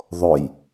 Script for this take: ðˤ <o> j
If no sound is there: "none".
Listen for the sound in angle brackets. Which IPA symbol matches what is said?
o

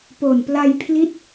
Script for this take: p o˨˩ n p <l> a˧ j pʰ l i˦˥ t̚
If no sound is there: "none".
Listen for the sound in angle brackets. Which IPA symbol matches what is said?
l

